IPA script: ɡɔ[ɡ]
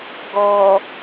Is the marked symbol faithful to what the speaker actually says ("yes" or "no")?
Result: no